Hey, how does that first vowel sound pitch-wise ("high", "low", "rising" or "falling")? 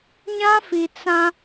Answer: high